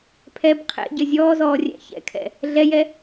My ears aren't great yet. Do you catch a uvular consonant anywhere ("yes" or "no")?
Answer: yes